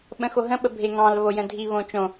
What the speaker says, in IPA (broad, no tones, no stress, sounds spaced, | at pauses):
ɓ ə̃ x o ɦ ə̃ ɓ ə bʱ e ŋ ɑ̃ l β o j ə̃ dʱ i β õ t͡ʃ õ